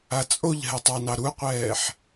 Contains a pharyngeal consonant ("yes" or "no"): yes